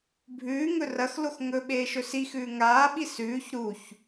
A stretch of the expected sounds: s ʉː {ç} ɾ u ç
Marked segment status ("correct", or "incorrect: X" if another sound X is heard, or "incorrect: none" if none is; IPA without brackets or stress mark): correct